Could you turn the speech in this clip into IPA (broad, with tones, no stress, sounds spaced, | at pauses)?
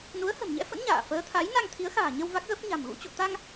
n u˨˦ ə̯ h ə̤˨˩ m ɲ ɛ̰˧˥ f ə̰˧˥ n ɲ a̰ː˧˨ f əː˨˦ t̪ʰ a˨˦ j n a˧ ŋ t̪ʰ i˨˦ ə̯ x a̤ː˨˩ ɲ ə˧ w v a˦˥ k̚ ɣ ə˦˥ p̚ ɲ a̤˨˩ m ɣ ṵ˧˥ t͡ɕ o̰˧˨ t̪ a˧ ŋ